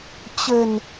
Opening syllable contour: low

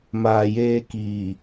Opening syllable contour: low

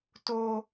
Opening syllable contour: high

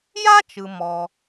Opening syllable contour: high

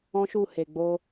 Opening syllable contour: high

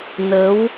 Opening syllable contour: rising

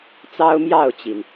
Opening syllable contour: high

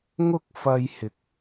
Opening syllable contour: high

